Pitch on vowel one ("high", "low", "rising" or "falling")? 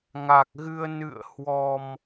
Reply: low